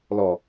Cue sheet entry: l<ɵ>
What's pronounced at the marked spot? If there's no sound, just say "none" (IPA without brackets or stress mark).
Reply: ɔ